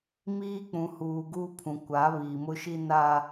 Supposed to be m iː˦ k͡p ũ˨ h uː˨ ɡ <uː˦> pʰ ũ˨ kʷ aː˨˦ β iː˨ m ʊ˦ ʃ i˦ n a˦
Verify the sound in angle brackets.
incorrect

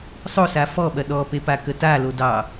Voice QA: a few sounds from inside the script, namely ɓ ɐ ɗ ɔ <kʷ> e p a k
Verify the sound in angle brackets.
incorrect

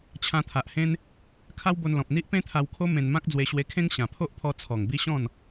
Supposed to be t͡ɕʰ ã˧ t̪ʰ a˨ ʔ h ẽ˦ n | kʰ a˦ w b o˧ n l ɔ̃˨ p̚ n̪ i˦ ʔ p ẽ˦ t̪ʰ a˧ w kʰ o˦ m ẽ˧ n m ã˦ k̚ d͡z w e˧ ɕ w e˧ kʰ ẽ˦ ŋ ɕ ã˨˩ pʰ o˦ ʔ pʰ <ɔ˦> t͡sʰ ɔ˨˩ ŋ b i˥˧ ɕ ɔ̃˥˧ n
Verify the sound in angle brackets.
incorrect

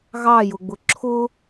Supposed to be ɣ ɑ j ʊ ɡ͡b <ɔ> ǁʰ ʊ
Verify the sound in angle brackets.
incorrect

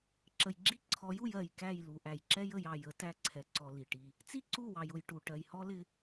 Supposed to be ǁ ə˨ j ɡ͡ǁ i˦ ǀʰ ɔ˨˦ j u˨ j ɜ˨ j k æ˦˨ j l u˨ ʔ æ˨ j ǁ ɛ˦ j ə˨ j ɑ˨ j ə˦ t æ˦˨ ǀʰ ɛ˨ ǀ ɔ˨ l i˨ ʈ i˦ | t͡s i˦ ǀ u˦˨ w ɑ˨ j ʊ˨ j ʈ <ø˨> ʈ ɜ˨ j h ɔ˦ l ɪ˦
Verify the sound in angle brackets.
incorrect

